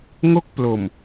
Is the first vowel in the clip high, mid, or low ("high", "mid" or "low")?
mid